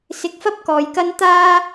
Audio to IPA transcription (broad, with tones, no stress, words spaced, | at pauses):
sɪ˨k̚fɐ˥p̚ kɔː˨jkɐ˥n t̪aː˥